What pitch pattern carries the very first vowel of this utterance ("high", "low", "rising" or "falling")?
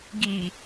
low